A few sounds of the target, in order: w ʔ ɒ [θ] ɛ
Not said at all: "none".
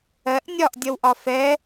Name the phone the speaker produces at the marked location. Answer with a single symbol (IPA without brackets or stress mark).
f